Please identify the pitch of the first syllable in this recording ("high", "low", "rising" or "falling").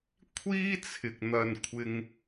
high